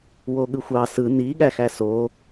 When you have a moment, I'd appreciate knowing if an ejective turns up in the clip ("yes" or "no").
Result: no